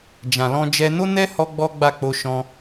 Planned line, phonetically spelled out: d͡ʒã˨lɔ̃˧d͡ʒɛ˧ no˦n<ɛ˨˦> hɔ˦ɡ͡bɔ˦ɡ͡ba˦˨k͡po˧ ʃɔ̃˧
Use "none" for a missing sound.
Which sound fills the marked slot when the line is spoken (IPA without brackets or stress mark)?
ɛ˦